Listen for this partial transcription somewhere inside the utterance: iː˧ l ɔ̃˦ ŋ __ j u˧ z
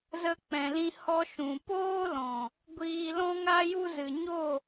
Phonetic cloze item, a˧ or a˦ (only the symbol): a˦